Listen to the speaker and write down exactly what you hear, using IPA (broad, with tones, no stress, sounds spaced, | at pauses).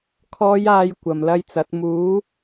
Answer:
kʰ ɔː˨˧ j aː˨ j kʷ ɐ˨˩ m l ɐ˧ j t͡s ɐ˨˥ t̚ m uː˨˥